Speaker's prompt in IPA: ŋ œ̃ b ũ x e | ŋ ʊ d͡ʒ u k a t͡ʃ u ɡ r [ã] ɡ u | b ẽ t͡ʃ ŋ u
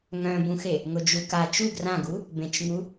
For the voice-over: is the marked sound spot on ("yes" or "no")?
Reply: yes